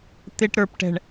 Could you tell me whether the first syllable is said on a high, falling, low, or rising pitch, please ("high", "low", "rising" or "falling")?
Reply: low